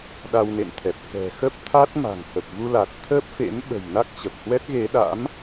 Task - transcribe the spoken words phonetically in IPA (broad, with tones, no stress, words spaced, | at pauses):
ɗa˧wnḛ˧˨nt̪ʰɛ˨˩p̚ kɛ̤˨˩ xə˦˥p̚t̪ʰa˦˥t̚ma̤˨˩ŋ hə˨˩p̚vu˧la˨˩t̚ t̪ʰəː˦˥p̚fḛ˧˥m ɓə̤˨˩j na˦˥k̚t͡ɕə˨˩p̚hwɛ˦˥t̚ ɣe˨˦ɗa̰˧˥m